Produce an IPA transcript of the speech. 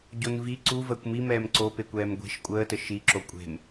ɟ o n v i ǀ u v əː kʷ m i m ɛː m ǀ o p e kʷ ɛː m ɡʷ e̤ ʃ kʷʼ əː t ə ʃ i ǁ o kʷʼ e̤ m

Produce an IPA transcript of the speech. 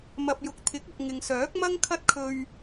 m ɐ˨ p̚ j ʊ˨ k̚ t̪ʰ ɪ˨˥ k̚ ʊ˨ k̚ ŋ ɪ˨ ŋ s œː˨˥ k̚ m ɐ˥ ŋ kʰ ɐ˥ t̚ kʰ ɵ˧ ɥ

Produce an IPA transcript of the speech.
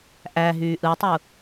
ʔ æ ɦ yː ʔ ɯ tˤ u

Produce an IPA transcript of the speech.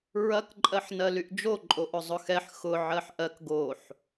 ɹ ɐ k ǃʼ ɜ ħ n ɜ l y ʔ d͡ʒ o ǃʼ o ʔ ʊ zˤ ʊ x ɛ ħ x ʊ ʕ ɜ ħ ʔ ɜ k ɡ o ħ

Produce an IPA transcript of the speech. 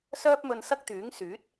s œː˥ p̚ m ɵ˧ n s ɐ˥ k̚ t̪ yː˨˥ ŋ s yː˨˥ t̚

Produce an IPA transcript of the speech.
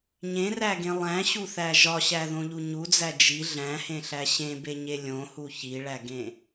ɲ ẽ r æ ɡ ẽ lˠ æ̃ ɕ u θ æ ʒ ɒ ɕ æ ð õ ʎ u ɲ u d͡z æ d͡ʒ i ɮ æ̃ h ẽ ɬ æ ɕ ẽ b e ɲ e lʲ õ h u ç i ɭ æ ɡ ẽ

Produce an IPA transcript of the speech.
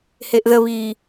h e ʔ ð ə β iː

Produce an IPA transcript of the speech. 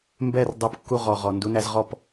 m b ɛ˥˩ r dˤ u˩˥ p kː u˧ ʁ ɔ˩ ʁ ɔ˩ n d u˩˥ n æ˧ z ʁ ɔ˥˩ p

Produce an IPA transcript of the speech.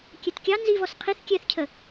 kʲ ɛ t kʲ ɑ n z i v ɔ s qʰ i θ kʲ ɛ θ cʰ ə

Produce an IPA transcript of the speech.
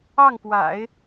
ɑ˥˩ ŋ p w a̰˨˩˦ ɪ̯

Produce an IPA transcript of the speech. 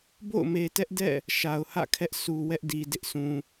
b o̰˦˨ ʊ̯ m e˨ t ɛ˦ ʔ d ɛ̰˦˨ | ʃ a˨ ʊ̯ h ä̰˦˨ kʰ ɛ˦ ʔ sʰ u˨ w ɛ˦ ʔ d i˨ d ɪ˦ ʔ sʰ ũ˨

